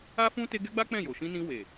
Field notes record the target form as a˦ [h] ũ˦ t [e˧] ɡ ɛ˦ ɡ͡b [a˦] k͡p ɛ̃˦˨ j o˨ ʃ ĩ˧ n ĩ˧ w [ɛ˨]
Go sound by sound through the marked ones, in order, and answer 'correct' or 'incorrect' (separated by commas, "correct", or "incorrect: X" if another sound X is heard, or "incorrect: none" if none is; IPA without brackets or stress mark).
incorrect: f, incorrect: e˦, correct, incorrect: e˨